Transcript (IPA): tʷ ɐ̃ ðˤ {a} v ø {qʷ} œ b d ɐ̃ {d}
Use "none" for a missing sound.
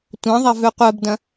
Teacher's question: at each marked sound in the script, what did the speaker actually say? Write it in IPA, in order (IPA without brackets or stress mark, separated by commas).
ɐ, qʷ, none